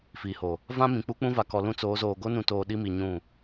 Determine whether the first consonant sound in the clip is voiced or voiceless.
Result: voiceless